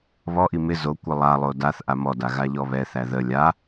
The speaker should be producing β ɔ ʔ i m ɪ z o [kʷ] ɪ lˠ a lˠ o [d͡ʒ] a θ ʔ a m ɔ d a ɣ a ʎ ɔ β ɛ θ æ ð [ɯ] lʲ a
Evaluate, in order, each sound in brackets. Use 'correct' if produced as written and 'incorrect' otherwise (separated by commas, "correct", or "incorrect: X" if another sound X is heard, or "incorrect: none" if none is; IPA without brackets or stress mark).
correct, incorrect: d, incorrect: ə